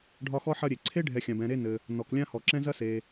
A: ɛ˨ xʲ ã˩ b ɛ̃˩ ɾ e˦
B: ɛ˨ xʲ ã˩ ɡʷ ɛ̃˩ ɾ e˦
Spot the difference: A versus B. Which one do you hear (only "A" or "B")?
A